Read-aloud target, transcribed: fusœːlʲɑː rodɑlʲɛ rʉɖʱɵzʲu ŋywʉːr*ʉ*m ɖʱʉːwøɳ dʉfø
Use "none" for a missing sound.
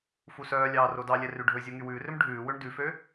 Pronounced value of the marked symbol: ø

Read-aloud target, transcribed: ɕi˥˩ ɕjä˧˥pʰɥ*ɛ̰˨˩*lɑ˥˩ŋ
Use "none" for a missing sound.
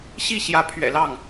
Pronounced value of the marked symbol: ɛ̰˨˩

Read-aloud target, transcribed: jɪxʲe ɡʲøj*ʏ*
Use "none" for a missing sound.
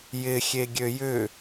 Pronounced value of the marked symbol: ʏ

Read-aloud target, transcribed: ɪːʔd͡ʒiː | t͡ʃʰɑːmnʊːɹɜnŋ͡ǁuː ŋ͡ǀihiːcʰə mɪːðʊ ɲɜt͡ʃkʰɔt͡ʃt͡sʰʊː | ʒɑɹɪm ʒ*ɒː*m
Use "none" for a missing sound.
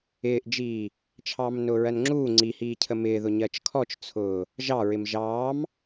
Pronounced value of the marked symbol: ɑː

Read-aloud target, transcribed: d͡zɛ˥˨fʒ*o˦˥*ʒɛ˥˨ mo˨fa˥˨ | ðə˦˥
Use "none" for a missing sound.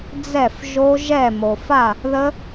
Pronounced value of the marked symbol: o˦˥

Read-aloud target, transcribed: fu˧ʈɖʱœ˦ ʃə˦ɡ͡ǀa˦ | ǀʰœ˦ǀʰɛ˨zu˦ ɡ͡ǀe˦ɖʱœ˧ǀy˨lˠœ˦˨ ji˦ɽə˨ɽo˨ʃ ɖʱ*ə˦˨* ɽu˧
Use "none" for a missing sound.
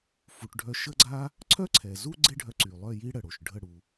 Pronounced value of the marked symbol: ə˦˨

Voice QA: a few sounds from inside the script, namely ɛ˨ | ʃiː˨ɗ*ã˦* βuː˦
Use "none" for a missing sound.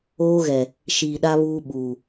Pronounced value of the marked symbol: a˦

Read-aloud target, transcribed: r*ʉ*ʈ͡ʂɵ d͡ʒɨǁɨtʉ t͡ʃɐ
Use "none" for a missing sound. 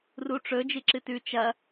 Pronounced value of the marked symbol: u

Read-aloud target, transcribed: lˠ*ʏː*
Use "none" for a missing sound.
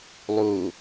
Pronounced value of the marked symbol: uː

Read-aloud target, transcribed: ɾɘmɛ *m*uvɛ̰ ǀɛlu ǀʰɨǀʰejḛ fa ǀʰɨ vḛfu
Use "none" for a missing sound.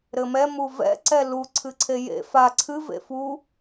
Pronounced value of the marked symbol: m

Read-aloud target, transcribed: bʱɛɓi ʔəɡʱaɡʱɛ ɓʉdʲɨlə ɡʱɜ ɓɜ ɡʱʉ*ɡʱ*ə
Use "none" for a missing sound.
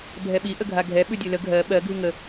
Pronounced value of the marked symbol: ŋ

